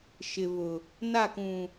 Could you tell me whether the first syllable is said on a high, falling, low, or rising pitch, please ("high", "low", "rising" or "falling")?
low